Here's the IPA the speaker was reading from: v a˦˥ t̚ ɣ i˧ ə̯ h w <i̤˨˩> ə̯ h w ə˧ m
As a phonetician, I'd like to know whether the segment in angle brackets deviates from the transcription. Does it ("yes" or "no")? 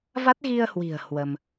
no